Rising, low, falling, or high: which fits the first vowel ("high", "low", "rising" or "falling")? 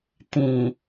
low